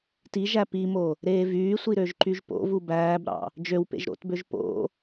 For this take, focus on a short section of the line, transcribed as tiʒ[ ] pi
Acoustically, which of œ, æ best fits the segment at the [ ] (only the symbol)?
æ